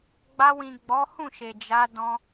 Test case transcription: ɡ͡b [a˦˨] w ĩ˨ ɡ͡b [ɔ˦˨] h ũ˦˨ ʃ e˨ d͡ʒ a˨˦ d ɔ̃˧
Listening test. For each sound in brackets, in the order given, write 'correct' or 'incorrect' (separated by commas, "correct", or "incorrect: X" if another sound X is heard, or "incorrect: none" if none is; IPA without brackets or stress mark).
incorrect: a˧, incorrect: ɔ˨˦